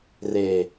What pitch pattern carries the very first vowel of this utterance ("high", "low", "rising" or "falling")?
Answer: low